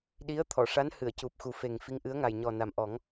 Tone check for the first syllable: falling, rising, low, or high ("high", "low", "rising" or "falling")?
rising